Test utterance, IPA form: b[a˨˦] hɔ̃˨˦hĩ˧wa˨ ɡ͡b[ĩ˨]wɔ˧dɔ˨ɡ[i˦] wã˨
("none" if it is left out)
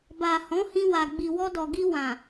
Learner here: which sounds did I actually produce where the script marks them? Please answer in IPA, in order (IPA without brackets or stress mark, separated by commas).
a˨, i˨, i˧